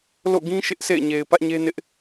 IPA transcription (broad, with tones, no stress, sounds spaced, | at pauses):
l o̰˦˨ ɡ ĩ˦ ʃ ɪ˦ ʔ s ḛ˦˨ ɪ̯ ɲ e˨ ɪ̯ p ä˦ ʔ ɲ e˦ n ɪ˦ ʔ